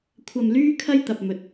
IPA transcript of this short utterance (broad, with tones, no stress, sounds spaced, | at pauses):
kʷʰ ɐ˨ m l yː˧ kʰ ɐ˧ j t̪ ɐ˨ p̚ m ɵ˨˥ t̚